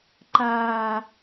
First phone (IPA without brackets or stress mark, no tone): ǃ